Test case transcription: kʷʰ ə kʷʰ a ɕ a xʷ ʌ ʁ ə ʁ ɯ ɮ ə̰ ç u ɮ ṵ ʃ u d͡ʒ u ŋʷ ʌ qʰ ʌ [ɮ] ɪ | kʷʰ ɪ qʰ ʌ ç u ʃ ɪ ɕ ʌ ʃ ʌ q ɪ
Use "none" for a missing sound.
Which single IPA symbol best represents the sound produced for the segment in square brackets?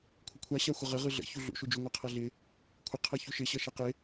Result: ɮ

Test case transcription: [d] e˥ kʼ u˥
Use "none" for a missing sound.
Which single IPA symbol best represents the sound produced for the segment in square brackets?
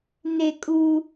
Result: n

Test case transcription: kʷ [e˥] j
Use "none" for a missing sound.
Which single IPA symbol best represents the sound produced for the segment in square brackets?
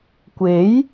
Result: e˨˥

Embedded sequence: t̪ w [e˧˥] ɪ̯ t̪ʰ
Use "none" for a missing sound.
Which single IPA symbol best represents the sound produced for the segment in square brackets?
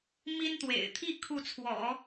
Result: ḛ˨˩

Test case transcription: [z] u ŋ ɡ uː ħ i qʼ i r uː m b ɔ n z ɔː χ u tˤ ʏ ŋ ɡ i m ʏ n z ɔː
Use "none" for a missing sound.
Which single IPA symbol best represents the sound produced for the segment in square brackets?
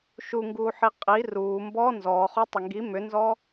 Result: ʃ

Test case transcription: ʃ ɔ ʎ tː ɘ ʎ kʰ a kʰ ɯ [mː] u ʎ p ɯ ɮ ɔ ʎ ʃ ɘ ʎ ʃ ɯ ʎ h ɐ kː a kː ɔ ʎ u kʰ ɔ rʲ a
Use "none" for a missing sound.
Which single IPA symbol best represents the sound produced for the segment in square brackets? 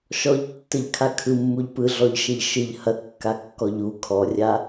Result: mː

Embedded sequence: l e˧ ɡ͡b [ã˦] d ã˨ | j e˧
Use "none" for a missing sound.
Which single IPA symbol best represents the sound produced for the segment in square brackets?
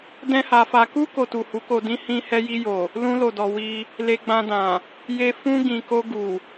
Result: ã˧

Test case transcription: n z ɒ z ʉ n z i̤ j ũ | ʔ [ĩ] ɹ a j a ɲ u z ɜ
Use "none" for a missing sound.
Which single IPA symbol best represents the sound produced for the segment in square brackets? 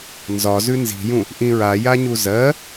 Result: ĩ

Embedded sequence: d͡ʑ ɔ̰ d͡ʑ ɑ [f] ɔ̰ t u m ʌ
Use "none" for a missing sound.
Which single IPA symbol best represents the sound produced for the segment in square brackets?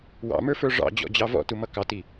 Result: v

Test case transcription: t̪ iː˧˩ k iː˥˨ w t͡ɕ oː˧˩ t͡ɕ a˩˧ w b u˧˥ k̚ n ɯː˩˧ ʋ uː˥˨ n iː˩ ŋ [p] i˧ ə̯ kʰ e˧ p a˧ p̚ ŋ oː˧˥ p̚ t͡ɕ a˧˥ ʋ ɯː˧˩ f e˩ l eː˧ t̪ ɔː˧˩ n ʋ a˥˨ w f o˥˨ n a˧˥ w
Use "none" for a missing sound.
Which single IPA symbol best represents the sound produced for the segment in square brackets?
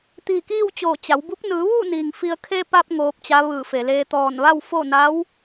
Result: f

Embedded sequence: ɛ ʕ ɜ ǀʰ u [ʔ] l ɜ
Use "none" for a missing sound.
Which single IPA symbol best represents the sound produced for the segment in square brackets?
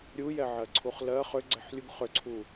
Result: χ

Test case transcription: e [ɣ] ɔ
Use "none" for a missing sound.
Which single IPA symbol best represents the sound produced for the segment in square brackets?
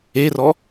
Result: r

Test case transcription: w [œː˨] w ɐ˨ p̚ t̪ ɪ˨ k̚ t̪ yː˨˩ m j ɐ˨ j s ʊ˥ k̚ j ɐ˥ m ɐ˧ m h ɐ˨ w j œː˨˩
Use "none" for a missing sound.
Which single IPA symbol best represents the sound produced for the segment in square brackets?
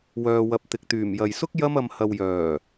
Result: œː˨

